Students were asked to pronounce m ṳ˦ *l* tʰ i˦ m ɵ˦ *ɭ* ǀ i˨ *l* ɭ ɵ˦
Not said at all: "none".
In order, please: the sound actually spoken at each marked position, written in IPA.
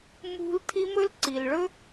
l, l, l

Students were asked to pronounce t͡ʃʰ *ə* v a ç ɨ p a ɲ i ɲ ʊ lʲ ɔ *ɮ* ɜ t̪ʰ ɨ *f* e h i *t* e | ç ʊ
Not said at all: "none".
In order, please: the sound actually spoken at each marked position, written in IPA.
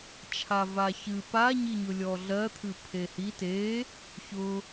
a, ɮ, pʰ, t

